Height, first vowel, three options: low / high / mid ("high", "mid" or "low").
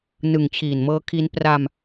high